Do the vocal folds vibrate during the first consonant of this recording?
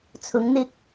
no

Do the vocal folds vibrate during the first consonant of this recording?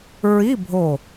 yes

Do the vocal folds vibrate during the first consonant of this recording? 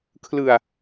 no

